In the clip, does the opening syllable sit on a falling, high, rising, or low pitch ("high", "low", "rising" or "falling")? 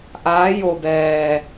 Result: rising